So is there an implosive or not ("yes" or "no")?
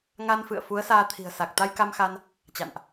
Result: no